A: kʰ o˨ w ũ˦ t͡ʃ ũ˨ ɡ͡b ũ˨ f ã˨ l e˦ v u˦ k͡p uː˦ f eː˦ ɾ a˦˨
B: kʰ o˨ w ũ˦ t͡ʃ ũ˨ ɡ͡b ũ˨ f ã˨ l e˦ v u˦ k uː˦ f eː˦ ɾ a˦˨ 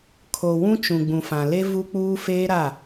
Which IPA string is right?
A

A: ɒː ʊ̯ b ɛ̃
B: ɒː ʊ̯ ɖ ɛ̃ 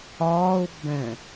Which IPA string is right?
A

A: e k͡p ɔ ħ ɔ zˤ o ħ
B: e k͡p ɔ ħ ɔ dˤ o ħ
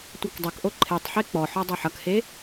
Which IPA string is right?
B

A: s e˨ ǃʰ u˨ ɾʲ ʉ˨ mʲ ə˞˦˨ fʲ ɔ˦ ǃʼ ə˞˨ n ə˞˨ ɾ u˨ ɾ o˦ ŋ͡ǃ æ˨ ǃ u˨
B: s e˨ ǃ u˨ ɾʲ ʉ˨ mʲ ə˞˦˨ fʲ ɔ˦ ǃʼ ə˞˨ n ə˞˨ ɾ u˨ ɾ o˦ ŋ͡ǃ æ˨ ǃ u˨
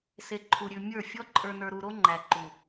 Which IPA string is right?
A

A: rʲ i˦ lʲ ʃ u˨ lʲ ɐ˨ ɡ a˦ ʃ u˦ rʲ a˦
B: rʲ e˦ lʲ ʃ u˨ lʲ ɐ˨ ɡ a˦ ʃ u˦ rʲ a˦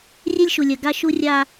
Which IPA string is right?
B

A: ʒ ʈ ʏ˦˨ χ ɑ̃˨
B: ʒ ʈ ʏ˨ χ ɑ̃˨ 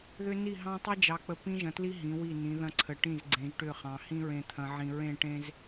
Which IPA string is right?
A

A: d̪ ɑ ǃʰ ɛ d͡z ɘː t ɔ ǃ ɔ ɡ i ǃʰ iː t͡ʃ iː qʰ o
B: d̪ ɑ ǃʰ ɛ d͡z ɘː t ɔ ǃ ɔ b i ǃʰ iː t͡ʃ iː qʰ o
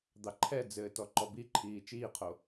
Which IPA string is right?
B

